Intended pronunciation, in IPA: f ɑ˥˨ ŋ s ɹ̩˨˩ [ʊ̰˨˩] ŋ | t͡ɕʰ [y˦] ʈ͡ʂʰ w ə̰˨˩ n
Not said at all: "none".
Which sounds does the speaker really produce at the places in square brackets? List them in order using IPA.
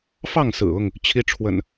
ʊ˥˨, i˦

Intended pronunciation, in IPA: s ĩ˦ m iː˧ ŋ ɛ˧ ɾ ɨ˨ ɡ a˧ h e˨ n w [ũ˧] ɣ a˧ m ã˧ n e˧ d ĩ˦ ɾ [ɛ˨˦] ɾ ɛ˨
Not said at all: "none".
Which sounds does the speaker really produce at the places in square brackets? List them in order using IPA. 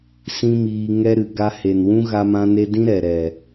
ũ˦, ɛ˨

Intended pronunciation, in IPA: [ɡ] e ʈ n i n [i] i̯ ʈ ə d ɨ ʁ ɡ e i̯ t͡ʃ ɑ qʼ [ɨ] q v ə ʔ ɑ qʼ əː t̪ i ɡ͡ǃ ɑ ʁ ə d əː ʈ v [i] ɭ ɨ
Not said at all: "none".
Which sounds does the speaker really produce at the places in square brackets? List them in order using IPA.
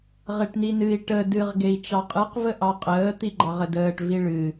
ʁ, ɨ, ɨ, i

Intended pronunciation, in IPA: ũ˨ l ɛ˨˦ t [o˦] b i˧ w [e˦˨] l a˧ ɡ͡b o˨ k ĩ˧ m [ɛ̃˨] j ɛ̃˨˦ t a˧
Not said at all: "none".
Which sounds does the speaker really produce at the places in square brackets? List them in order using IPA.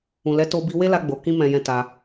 o˧, e˦, ɛ̃˨

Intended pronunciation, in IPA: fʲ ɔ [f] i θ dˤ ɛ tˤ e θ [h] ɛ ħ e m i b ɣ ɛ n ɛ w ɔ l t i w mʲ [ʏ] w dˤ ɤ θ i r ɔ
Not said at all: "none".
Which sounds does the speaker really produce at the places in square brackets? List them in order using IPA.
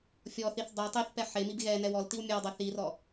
θ, p, ə

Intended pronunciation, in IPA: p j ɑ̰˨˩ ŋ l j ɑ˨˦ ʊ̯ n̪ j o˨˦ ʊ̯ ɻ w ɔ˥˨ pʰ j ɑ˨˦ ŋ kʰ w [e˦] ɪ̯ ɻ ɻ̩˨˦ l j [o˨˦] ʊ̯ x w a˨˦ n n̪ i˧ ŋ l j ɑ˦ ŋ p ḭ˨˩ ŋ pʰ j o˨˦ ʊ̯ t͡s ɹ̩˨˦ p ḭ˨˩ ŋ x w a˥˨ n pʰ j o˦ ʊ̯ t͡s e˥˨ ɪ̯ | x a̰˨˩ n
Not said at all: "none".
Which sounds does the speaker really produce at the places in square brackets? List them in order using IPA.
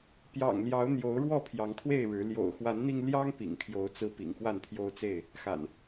e˥˨, o̰˨˩

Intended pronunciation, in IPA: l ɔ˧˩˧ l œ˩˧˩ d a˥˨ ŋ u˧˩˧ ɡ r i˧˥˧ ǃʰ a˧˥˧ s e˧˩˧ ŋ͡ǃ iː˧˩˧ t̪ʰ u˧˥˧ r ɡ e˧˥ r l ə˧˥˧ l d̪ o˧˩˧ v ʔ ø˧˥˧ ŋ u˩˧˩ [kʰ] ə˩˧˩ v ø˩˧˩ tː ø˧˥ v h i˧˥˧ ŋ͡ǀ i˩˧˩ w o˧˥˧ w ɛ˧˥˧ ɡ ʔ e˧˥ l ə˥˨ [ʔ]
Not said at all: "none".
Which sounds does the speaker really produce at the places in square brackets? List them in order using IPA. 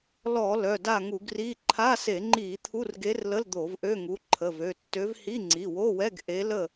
ǃʰ, none

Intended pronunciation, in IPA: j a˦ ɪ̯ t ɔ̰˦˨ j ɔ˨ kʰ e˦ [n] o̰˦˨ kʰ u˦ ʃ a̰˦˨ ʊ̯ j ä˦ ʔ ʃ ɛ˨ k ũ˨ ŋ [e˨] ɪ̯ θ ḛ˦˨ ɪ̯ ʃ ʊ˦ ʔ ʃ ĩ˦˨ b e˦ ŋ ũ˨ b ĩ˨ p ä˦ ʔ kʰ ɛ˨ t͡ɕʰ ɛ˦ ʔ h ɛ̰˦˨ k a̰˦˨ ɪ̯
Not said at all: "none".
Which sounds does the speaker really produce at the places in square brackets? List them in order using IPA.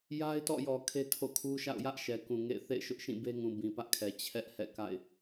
tʰ, ḛ˦˨

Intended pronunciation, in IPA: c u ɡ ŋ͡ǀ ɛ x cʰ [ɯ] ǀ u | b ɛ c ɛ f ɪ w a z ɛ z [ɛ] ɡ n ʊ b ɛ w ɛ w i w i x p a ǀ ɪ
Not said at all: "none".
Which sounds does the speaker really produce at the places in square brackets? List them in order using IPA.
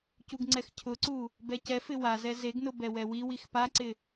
ʊ, e

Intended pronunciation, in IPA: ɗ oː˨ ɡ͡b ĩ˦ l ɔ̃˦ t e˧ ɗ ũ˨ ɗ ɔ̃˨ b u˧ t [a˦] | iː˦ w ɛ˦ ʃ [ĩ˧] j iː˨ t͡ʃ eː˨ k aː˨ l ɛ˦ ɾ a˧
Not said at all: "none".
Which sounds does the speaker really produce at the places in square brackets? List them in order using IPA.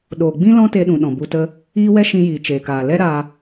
ə˦, ĩ˧

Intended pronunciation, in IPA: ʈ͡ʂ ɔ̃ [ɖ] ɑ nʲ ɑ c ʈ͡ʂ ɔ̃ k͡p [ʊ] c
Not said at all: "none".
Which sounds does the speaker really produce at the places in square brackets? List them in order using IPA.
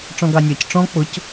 ɡ, ʊ

